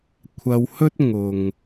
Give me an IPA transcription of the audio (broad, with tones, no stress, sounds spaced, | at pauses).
kʷʰ ɐ˧ w h ɵ˥ t̚ ŋ ʊ˨ ŋ